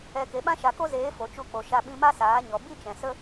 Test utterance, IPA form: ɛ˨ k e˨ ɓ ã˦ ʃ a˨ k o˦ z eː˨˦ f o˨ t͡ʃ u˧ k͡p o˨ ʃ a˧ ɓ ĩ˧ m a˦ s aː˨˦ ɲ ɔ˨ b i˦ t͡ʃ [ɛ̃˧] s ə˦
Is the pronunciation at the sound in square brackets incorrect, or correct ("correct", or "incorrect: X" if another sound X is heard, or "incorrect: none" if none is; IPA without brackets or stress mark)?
incorrect: ɛ̃˨